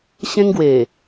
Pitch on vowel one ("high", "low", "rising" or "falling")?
high